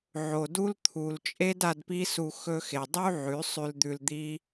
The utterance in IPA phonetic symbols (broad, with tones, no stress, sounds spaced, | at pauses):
ʕ o˨ d u˦ l t̪ʰ u˨ l t͡ʃʼ e˦ d a˧ d p i˦ s u˧ x ɵ˧ x e˨ dˤ u˦ ʕ ʉ˨˦ sˤ ʉ˧ l d̪ ʉ˧ l d̪ i˦